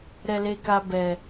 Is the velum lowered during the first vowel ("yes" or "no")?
no